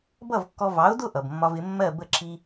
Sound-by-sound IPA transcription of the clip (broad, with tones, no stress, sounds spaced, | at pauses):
b ʌ˥˩ v kː ɔ˧ v ɑ˩˥ ʊ̯ d ʊ˥˩ ʔ ʌ˩ b mː ɒ˧ v ɪ˩˥ mː ɜ˥˩ b ə˥˩ ǁʰ i˧